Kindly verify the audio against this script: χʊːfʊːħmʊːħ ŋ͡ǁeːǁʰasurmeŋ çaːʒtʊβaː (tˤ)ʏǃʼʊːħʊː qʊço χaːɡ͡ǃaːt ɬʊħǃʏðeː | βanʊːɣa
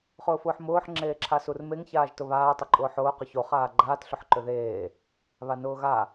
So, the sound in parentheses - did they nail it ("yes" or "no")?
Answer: yes